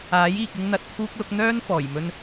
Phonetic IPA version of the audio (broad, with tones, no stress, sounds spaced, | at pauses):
aː˨˥ j iː˨ k̚ ɪ˧ ŋ n̪ ɐ˨ t̚ t̪ʰ uː˧ k̚ l ʊ˨˥ k̚ n̪ œː˥ n f ɔː˨˩ j m ɵ˧ n